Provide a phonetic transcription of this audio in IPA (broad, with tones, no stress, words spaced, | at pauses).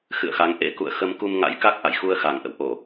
xɨ̰˧˨ə̯xa˨˦ŋ ʔḛ˧˥ kṵ˧˨ə̯ xə˧m ku˧mŋa̰˧˥j ka˦˥k̚ ʔa̰˧˨jxu˧ə̯xa˨˩ŋ ʔə̰˧˨wʔo˧˩˨